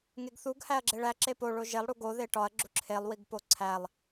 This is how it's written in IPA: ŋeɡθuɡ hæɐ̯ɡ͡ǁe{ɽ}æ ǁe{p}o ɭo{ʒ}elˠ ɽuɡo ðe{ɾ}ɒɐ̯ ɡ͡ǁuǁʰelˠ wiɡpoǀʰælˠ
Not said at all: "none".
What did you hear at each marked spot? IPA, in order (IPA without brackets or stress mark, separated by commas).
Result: ɭ, p, ʒ, ʈ